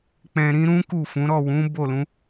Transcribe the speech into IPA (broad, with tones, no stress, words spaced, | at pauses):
k͡pɛ̃˧ɾĩ˦ ɾũ˦ ku˦˨fũ˨˦ ɾɔ˦˨wũ˨˦ bo˦˨lũ˨˦